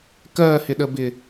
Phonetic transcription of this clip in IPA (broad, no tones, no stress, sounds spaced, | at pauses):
k ɜ h ɪ ɗ ə b ɪ